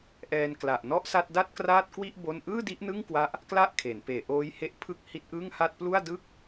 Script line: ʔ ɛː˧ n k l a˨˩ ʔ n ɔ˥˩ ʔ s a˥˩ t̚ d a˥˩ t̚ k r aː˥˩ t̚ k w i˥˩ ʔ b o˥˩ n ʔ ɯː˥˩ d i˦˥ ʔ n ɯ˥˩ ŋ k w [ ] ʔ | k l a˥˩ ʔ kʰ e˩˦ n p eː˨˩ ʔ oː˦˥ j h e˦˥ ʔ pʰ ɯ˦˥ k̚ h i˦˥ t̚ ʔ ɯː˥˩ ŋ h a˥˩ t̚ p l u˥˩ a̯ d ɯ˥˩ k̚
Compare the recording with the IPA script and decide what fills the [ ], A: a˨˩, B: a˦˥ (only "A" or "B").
B